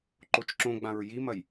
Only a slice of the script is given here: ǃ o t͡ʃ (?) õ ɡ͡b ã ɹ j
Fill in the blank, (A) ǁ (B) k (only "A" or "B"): A